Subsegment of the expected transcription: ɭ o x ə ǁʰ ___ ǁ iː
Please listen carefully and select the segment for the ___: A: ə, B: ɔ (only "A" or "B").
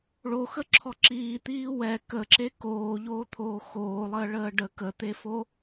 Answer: B